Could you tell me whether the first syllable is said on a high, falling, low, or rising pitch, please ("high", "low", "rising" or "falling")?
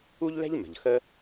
high